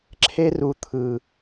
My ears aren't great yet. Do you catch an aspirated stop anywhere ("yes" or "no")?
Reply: yes